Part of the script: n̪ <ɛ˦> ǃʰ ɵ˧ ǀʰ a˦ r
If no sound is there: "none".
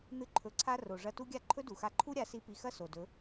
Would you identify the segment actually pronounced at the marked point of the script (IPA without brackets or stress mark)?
ɨ˦